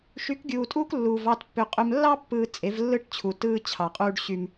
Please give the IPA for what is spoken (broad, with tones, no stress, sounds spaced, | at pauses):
ʃ y˨˦ k ɡʲ uː˨ tʼ uː˦ k lː uː˨ v ɑ˦˨ t pː ø˨ qʼ ø˨ m lː ɑ˦ pː ɯː˨ t͡sʼ e˨˦ v lː ɯ˦ ʈ t͡ɕʰ u˨ t ɯː˦ t͡ɕʰ ɑ˨ qʼ uː˦ ɖ ɕ y˦ m